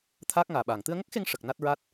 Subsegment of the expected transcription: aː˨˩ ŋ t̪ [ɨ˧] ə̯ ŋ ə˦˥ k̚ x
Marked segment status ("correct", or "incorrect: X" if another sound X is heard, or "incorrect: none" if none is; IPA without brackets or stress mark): correct